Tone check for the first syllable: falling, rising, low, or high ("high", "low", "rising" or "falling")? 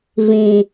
low